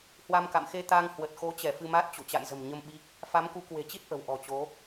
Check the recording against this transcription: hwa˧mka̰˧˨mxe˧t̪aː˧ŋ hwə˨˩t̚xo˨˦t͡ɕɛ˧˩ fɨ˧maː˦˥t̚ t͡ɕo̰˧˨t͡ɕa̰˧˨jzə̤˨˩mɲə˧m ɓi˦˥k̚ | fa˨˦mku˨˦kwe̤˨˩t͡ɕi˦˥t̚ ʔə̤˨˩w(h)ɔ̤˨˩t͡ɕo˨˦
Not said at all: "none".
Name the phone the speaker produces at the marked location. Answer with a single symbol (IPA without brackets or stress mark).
ʔ